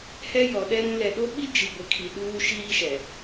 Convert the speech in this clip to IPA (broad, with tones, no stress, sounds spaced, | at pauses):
h ɛ˦ j ɔ˨ ɗ ɛ˦ ɾ ũ˨˦ l ɛ˨ ɗ o˦ ɓ i˦ d͡ʒ i˨ ɡʷ ɪ˨ kʰ i˨ ɗ uː˦ ʃ iː˦ ʃ ɛ˨